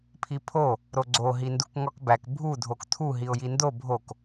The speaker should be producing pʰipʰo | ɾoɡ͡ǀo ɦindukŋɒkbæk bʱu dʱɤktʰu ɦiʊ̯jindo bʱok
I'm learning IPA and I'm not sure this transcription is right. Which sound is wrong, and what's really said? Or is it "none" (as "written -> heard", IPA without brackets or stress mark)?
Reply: ɤ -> o